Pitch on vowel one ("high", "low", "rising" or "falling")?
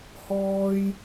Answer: high